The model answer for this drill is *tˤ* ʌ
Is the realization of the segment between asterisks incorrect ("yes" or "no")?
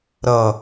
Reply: yes